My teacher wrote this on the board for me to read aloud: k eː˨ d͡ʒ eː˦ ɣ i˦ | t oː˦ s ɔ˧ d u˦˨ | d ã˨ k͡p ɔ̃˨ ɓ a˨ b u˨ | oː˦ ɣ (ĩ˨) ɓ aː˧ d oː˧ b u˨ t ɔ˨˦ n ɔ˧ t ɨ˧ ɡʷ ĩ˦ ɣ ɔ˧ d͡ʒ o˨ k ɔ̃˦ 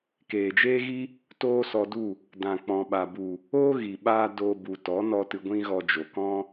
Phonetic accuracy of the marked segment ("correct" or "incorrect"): incorrect